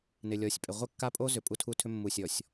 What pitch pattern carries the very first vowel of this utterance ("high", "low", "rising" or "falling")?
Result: low